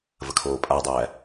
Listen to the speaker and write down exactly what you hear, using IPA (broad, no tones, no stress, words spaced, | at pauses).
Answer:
vəkʰoːpʼadˤæ